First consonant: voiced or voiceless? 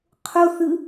voiceless